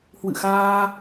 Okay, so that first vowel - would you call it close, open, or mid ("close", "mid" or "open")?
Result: close